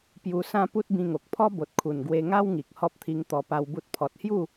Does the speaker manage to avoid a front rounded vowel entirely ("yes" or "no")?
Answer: yes